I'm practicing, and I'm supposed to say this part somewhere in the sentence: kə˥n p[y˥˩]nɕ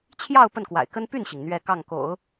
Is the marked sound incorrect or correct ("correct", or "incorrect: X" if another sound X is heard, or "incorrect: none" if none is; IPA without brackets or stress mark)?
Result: correct